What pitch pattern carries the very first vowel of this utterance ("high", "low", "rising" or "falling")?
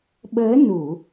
rising